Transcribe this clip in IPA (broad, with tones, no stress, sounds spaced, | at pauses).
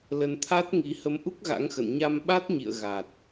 l ə˧ n t̪ʰ a˦˥ t̚ ŋ i˨˦ h ə˨˦ m ʔ u˦˥ k̚ ɣ a̰˧˥ ŋ x ə̰˧˨ n ɲ a˧ m ɓ a˦˥ t̚ ɲ ḭ˧˨ ə̯ ɣ a˨˩ t̚